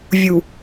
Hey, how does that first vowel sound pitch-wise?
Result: low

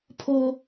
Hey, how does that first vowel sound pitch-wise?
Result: high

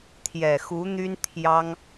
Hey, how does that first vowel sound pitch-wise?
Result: low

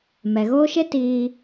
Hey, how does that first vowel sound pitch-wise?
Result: low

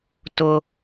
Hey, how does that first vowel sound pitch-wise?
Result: high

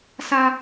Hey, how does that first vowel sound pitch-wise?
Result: high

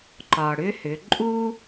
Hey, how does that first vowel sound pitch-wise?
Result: low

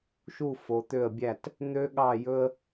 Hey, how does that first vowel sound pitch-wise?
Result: falling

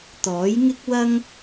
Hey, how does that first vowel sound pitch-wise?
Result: rising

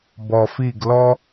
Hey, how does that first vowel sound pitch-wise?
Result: low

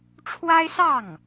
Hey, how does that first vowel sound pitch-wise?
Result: high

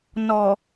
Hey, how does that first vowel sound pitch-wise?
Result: low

